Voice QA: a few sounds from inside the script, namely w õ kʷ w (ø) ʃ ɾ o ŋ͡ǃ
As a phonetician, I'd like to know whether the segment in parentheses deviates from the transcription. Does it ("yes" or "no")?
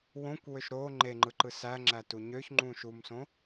no